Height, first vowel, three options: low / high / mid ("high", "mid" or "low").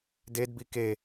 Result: mid